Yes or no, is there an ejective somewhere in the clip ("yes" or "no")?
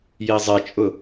yes